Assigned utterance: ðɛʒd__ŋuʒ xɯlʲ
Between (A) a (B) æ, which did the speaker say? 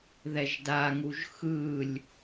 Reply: A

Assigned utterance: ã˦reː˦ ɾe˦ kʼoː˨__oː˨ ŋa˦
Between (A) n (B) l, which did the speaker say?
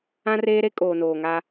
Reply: A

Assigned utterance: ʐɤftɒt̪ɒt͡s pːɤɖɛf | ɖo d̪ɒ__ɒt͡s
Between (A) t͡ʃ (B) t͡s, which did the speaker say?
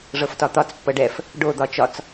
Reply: A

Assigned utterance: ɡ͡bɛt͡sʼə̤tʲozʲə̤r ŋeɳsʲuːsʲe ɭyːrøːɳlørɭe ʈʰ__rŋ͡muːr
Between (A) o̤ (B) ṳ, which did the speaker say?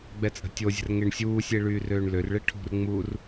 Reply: B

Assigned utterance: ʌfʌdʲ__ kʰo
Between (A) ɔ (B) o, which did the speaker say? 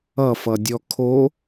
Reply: A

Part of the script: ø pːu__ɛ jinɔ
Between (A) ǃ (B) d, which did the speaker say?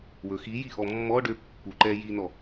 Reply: A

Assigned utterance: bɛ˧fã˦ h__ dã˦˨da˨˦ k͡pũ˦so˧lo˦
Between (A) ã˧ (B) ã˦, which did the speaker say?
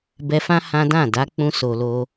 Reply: B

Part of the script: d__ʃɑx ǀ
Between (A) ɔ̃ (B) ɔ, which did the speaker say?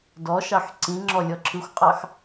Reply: B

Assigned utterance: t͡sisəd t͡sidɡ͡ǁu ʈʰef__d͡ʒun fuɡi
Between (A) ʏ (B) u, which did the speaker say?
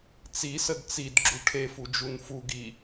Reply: B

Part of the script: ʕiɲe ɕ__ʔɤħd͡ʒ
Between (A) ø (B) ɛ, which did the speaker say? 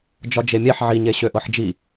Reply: A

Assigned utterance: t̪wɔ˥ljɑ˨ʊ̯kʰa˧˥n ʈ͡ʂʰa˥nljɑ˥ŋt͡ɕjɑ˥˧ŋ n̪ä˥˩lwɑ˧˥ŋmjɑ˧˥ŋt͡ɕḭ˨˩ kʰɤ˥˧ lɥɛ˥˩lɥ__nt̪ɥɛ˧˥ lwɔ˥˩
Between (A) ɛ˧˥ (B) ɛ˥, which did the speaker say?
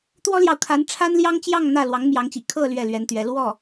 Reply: A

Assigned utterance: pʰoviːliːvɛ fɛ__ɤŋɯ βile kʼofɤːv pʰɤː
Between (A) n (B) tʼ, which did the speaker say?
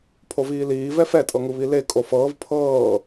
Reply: B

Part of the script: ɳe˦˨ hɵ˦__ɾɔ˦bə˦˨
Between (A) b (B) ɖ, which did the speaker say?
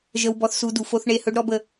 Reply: B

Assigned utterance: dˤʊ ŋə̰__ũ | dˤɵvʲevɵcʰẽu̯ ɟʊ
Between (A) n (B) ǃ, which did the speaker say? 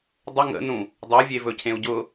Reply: A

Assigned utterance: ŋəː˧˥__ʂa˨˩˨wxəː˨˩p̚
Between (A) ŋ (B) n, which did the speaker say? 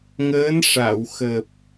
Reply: B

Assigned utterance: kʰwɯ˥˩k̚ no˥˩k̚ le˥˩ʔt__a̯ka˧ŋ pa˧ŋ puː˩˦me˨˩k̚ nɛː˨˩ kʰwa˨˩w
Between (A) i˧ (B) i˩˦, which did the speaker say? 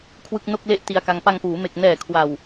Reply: A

